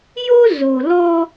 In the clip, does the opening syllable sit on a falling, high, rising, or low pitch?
high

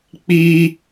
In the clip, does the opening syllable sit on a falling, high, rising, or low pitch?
high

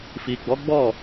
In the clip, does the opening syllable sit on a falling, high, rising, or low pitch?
low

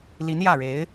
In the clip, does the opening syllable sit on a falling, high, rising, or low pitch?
rising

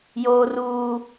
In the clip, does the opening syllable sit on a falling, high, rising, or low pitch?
high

